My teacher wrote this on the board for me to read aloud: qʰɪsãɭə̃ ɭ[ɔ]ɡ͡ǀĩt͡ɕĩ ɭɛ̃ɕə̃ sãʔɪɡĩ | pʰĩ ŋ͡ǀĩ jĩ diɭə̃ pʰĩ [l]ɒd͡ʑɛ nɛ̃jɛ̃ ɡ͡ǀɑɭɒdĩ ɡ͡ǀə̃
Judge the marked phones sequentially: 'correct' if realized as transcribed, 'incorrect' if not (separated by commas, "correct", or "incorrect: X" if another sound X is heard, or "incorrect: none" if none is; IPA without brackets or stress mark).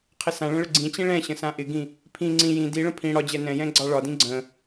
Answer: incorrect: ə, incorrect: ɽ